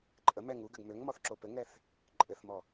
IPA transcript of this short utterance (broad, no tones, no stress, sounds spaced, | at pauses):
ǃʼ ə m ɛ ŋ u ɡ ɘ ɡ m ø ŋ m ɔ θ ǁ o p ɘ ŋ ɛ θ | ǃʼ ɘ θ m ɔ